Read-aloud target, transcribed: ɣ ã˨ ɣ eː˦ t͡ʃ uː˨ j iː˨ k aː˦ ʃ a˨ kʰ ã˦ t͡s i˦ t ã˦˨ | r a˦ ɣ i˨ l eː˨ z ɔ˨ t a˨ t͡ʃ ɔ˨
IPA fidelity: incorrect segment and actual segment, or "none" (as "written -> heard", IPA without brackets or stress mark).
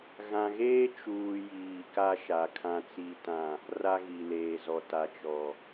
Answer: aː˦ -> a˦